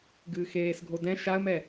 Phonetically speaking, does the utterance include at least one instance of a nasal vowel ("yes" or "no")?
yes